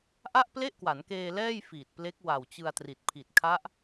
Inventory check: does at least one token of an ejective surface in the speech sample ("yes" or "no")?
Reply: no